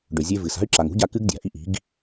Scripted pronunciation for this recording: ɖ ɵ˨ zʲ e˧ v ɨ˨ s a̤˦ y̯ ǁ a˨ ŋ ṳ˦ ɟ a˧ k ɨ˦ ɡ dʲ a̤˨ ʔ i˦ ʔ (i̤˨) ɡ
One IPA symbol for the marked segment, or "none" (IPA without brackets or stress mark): i̤˨˦